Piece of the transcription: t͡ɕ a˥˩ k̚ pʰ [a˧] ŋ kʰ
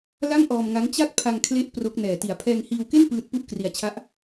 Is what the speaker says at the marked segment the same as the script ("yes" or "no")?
yes